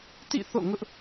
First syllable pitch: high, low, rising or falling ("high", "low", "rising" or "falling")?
falling